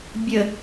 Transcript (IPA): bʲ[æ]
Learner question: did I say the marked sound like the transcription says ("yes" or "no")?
no